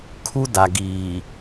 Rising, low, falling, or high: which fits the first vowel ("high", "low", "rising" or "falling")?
high